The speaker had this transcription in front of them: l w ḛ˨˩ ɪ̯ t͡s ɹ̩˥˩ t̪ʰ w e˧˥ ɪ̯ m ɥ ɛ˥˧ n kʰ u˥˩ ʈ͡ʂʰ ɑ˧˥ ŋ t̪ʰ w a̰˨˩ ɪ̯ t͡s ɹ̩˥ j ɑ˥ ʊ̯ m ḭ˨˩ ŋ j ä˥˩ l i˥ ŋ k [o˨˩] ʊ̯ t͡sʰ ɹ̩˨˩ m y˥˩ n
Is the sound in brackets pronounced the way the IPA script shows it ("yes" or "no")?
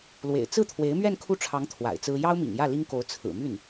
no